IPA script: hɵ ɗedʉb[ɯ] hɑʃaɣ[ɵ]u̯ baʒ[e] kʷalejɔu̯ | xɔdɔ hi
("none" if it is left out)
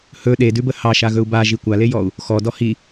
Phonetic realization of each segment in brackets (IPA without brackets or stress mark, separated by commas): ə, ɵ, i